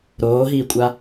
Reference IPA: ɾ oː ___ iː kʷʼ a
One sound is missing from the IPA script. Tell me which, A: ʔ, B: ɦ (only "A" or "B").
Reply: B